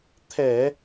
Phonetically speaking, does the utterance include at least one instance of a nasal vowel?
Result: no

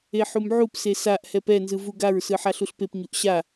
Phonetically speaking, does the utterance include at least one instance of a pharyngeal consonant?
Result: yes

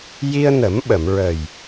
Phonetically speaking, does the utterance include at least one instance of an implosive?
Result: yes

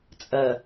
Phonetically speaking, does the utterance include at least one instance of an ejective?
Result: yes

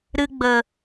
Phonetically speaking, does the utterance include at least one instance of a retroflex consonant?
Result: no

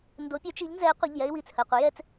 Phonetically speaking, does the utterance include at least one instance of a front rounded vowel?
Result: yes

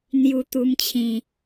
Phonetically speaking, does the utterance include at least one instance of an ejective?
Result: no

